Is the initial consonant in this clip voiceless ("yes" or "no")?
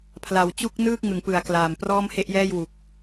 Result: yes